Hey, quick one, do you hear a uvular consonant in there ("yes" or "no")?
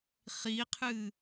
yes